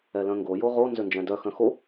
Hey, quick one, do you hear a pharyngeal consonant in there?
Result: no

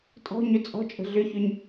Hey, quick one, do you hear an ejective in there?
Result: yes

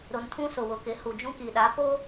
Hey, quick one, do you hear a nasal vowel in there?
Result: yes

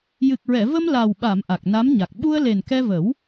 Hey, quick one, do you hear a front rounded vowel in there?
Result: no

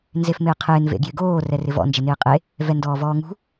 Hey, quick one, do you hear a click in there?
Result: no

